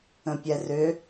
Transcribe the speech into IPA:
ə̃ pʲ ɛ r ʏ

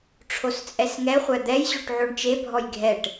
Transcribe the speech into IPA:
ʈ͡ʂʰ o s t͡sʼ ɛ s ŋ ɛ χʷ æ d̪ ɛ j ʑ o ʈ ʕ o ɳ t͡ʃ e bʱ ɔ j ɡʱ ɛ ʈ

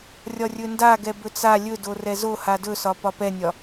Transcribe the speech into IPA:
rʲ ɒ rʲ ɵ n d a ɡ ɛ b ɵ t͡s a lʲ ɵ d o r ɛ z o h a d ɵ s ɒ p ɒ p ɛ nʲ ɒ

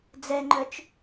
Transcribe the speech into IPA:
d͡z ɛ ŋ͡ǃ œ t͡ʃ

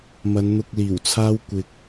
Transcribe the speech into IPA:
m ɐ˨˧ n n̪ ʊ˧ k̚ l iː˨˩ w t͡sʰ aː˥ w kʷ ɪ˧ k̚

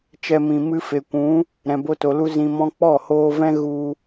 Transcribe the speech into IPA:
t͡ʃ ɛ˧ m ĩ˨ m ɨ˧ f e˨ kʷ ũ˨˦ | ɾ ɛ̃˨ b o˧ t o˨ l u˧ z ĩ˨ m ɔ̃˧ k͡p ɔ˦˨ h oː˧ v ɛ̃˦ ɣ u˧

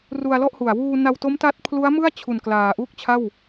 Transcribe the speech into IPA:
r u˧ a̯ l ɔ˥˩ ʔ h u˨˩ a̯ w uː˧ n a˧ w t o˦˥ m t a˦˥ t̚ pʰ l u˦˥ a̯ m ɯ˥˩ a̯ t͡ɕʰ u˨˩ n k l aː˨˩ ʔ uː˥˩ k̚ t͡ɕʰ a˥˩ w

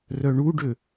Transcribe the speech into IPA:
r œ ɳ u ɖ ø

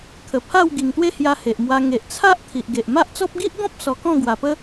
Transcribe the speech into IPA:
kʰ ə˨˩ pʰ a˥˧ w ɡ i˨˩ ŋ t̪ w e˦ h j a˧ h e˨ ʔ m w a˧ ŋ e˨ ʔ t͡sʰ a˦ ʔ t̪ʰ i˨ ʔ ɡ e˨ ʔ m a˦ ʔ t͡s ɔ˦ p̚ ɡ i˦ ʔ ɡ ɔ̃˦ p̚ s ɔ˧ k ɔ̃˥˧ ɡ w a˨˩ p ə˦

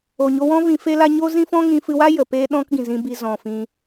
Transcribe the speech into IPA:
o˨ ɲ o˧ w ɔ̃˦ v ĩ˧ f e˦ l a˦ ɲ o˦ z ĩ˦ f ɔ̃˦ ŋ ĩ˧ f ɨ˧ w a˦ j ə˨ p e˦ ɗ ɔ̃˦ k ɡ ĩ˨ z ĩ˧ b i˧ z ɔ̃˨ f ĩ˧

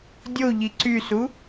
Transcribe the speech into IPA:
dʲ o ʎ i ǀ y s u

